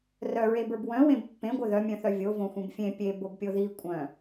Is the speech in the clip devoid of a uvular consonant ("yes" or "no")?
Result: yes